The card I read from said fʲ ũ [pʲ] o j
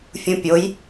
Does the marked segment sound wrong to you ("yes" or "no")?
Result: no